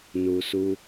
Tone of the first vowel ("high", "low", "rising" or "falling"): high